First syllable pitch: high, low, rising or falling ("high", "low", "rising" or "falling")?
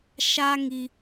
high